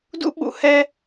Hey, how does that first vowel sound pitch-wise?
high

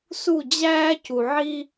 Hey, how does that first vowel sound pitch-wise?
falling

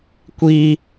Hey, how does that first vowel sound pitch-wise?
high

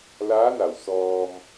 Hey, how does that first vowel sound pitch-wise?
rising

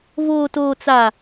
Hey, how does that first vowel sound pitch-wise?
low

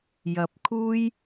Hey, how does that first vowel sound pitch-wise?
low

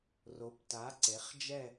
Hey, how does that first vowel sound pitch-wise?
rising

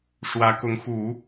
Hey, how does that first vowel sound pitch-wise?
rising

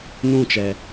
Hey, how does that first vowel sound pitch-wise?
falling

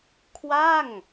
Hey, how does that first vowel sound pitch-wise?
falling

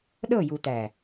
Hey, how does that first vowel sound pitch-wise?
falling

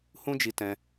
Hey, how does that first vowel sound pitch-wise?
high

